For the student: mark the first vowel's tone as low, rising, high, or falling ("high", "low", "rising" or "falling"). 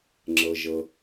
low